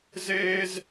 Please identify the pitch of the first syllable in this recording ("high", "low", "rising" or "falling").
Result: high